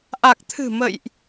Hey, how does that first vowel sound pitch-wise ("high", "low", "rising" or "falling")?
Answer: low